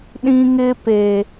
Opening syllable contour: high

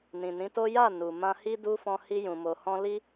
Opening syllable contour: low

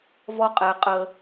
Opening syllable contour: high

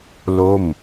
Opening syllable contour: falling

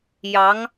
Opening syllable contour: rising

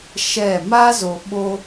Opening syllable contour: falling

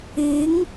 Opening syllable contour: rising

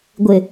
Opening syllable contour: low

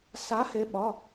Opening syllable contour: rising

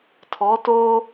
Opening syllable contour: rising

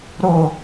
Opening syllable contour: falling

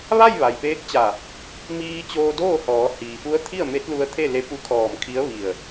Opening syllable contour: falling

